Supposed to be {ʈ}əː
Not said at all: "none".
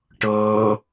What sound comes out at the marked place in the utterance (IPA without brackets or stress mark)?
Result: ʈ